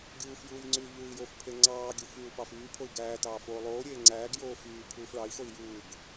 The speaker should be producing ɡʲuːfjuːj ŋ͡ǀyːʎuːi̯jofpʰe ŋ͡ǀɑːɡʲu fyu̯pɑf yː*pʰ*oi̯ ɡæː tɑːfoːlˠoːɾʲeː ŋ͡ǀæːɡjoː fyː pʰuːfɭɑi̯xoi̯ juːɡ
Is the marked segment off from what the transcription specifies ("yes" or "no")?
no